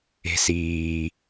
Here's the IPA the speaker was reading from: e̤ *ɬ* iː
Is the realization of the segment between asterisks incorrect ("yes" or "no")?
yes